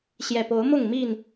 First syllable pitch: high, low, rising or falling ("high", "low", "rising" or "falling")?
low